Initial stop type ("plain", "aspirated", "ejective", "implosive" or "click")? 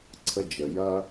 click